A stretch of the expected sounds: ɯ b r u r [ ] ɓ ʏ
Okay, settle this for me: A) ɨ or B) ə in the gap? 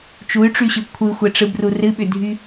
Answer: A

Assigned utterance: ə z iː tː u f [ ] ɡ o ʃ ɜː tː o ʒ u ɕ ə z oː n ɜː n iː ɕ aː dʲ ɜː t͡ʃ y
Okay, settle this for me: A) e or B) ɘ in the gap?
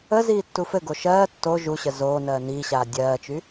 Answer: B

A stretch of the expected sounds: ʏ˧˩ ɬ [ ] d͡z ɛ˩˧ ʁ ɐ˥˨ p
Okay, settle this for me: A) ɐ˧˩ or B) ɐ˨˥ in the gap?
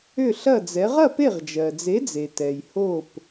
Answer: A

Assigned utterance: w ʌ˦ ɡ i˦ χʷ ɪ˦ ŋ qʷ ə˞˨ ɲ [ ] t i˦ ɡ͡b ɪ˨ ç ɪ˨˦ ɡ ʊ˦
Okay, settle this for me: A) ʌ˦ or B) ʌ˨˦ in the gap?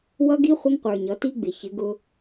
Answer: B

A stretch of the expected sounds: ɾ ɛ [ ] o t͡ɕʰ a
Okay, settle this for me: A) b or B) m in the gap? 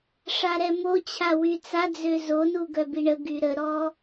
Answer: B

